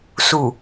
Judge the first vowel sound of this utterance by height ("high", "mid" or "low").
high